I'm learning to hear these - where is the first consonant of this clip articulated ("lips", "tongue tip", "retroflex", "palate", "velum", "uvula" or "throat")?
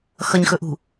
velum